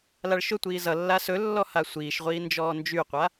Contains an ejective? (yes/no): no